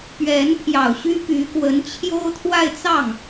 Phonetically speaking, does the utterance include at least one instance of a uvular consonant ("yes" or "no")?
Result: no